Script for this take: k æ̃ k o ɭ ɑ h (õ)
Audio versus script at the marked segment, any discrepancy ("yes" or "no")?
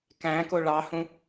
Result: yes